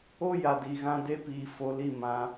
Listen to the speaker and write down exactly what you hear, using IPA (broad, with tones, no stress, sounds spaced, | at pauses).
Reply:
o˦ j a˨ d i˨ ɣ ã˧ d e˦ p iː˨ f o˨˦ l i˨ m ã˨˦